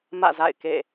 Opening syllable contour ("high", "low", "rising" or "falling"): falling